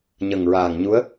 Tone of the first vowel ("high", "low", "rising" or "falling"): low